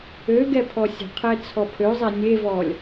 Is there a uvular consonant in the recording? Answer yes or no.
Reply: yes